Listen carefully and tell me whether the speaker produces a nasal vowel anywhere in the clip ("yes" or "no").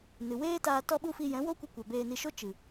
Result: yes